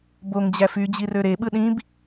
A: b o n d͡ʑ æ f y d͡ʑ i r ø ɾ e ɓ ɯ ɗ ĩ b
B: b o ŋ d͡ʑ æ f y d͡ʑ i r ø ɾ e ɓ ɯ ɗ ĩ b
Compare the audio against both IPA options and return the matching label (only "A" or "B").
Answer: B